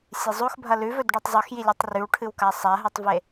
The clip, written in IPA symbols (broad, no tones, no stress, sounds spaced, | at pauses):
sʲ e zˤ o x bʱ ɐ l ʉ v ɵ d ɖ ʉ tˤ zˤ ʉ x j i lʲ e tˤ r ʉ w ʈʰ ɨ w k a sˤ a ɦ ɨ tˤ v e